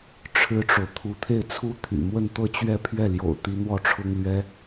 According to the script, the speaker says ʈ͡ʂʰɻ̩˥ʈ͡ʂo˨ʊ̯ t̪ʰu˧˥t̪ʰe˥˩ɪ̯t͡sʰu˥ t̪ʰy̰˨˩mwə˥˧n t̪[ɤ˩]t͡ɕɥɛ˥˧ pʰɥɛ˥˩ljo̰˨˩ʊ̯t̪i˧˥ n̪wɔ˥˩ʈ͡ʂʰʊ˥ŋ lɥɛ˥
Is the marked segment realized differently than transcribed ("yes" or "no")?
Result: yes